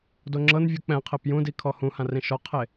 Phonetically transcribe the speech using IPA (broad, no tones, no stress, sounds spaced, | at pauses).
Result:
d o ŋ͡ǁ ɤ n vʲ u k͡p ɛ̃ qʰ e p j ũ d i kʰ ɔ h ũ h ã r ĩ ʃ ɔ qʰ e